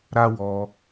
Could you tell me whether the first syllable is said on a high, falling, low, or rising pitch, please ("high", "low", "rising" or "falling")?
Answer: high